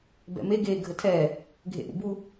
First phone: b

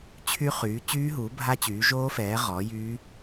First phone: t͡ɕʰ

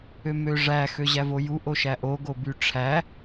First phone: ø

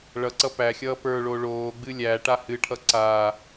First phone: ɭ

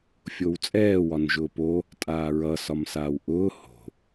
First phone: fʲ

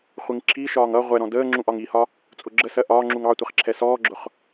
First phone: χʷ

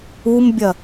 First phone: u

